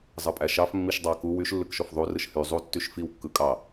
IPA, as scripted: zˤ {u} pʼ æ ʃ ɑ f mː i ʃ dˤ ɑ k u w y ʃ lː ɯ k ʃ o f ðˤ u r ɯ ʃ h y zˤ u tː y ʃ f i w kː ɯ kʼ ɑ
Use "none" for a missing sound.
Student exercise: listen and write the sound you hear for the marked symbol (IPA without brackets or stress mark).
ɯ